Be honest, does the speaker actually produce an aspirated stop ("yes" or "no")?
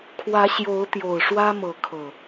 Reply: yes